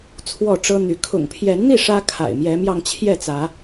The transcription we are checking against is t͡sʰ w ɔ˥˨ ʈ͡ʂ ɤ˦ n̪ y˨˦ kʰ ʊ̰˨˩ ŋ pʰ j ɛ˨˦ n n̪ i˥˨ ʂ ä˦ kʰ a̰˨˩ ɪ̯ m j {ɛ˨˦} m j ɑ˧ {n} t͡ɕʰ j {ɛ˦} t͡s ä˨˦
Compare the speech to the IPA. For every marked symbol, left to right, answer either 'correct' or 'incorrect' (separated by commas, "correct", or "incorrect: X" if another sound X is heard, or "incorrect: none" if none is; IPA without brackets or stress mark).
correct, incorrect: ŋ, incorrect: ɛ˥˨